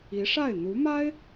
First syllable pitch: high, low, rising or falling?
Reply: rising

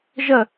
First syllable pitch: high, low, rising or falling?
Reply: falling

